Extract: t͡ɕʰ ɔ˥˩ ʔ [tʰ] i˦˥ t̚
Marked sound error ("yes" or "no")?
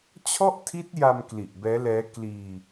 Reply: no